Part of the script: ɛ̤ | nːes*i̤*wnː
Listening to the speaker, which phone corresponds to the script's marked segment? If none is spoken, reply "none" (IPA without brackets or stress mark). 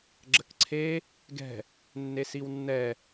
i